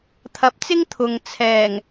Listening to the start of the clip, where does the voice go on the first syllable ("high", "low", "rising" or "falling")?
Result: rising